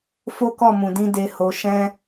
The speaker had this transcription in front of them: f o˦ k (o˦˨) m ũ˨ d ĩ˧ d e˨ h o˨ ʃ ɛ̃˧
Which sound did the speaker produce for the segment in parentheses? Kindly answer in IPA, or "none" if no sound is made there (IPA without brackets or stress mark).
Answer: ɔ˦˨